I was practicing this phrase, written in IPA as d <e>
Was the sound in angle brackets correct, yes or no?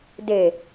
yes